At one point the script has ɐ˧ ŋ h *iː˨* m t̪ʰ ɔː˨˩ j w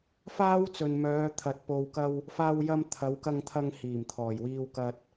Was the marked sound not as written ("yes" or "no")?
yes